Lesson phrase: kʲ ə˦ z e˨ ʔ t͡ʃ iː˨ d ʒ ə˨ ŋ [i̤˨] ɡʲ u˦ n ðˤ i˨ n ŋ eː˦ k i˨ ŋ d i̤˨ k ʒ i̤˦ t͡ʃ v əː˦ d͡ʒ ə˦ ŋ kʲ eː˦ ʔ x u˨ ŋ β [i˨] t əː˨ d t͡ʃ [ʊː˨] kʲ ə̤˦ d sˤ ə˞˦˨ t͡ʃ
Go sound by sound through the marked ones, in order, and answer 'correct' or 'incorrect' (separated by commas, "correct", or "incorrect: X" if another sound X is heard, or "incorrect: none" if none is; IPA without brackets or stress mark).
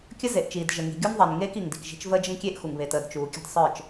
correct, incorrect: e˨, incorrect: uː˨